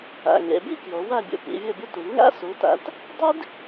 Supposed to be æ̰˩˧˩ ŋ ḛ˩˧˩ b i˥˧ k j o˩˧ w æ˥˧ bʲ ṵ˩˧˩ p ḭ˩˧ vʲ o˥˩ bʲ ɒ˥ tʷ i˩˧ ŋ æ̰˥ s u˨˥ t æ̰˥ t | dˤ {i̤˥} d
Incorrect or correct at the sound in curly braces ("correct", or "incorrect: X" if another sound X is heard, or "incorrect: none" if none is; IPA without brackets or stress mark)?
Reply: incorrect: i˥